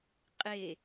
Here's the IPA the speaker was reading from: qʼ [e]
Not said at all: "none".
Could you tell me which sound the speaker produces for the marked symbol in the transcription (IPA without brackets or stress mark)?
e